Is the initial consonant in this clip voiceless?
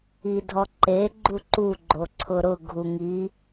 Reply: no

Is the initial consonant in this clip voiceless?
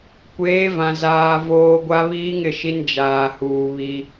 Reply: yes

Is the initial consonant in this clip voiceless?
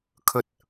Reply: yes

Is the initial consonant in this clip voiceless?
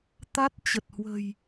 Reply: yes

